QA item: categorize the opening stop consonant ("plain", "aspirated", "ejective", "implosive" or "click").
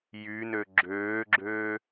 click